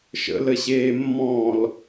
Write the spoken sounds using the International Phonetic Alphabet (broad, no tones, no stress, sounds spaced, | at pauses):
ʃ ə̰ l ə ɕ eː mː ɔ̃ː l